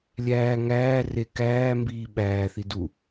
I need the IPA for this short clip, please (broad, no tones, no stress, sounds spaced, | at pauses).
lʲ æː ŋ æː r e k æː m b iː ɓ æː θ i d u